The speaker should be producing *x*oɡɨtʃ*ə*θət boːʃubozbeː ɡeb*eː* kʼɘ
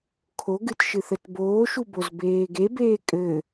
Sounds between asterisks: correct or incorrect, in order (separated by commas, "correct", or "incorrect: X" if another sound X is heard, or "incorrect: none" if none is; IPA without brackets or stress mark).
incorrect: kʰ, incorrect: ɨ, correct